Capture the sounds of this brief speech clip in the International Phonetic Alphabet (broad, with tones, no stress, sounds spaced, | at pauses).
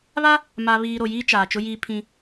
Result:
β a˦ | m aː˨ β iː˨ ɾ o˨ j iː˦ t͡ʃ aː˨ t͡ʃ ʊ˦ j iː˦ pʰ ĩ˦